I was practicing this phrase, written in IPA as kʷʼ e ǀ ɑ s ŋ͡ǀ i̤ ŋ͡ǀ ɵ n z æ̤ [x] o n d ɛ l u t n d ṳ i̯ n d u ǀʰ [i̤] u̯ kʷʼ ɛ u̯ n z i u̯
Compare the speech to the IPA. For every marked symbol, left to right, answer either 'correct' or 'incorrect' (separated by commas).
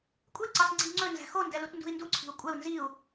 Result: correct, correct